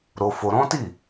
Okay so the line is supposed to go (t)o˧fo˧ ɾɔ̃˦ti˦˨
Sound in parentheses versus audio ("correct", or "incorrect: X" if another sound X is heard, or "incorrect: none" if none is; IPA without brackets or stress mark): incorrect: ɾ